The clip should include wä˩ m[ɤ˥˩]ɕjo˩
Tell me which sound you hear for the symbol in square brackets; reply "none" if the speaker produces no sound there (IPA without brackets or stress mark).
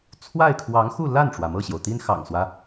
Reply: ɤ˥˩